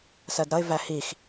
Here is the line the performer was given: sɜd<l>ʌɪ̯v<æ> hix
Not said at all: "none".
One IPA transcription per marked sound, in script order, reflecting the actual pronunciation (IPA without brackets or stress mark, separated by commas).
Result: ɾ, æ